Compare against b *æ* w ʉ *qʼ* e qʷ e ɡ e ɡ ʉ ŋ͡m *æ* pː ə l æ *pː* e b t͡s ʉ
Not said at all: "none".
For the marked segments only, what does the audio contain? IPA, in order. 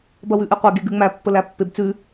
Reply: ɐ, ʔ, æ, pː

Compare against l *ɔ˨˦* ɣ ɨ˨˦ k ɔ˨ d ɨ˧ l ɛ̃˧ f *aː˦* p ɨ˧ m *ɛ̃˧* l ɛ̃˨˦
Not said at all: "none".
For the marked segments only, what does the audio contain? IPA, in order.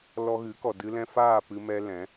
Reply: ɔ˧, aː˦˨, ɛ˧

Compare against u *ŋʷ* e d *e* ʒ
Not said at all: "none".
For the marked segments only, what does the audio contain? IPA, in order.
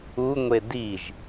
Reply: ŋʷ, i

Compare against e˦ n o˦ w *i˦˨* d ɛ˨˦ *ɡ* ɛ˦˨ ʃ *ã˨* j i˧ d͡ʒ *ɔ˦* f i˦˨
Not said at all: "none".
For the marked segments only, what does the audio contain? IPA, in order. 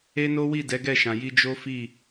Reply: i˦˨, ɡ, ã˨, o˦

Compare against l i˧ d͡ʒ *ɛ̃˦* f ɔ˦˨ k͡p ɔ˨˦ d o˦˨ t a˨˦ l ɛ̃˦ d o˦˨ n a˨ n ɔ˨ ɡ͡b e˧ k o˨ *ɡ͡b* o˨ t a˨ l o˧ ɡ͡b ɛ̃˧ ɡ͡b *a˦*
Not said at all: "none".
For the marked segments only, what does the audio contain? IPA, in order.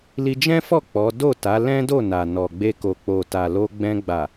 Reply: ɛ̃˦, k͡p, a˨

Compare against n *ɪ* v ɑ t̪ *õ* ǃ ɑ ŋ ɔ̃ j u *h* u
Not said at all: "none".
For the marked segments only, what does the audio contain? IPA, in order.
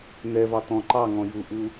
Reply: ɛ, ɔ̃, ʔ

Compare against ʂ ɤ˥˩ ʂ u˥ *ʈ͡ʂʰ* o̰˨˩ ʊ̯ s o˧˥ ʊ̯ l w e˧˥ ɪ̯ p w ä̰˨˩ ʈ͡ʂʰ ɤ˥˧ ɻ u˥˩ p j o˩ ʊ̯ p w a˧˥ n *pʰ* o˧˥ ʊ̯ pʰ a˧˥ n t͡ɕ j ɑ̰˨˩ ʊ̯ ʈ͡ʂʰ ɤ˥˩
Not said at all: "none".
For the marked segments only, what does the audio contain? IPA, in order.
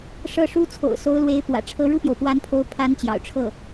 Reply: t͡sʰ, pʰ

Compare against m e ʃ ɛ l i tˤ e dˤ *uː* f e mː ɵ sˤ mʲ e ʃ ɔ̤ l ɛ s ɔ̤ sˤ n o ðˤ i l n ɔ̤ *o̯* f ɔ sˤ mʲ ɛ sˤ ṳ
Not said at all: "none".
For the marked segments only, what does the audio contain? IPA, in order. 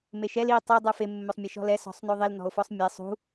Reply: u, o̯

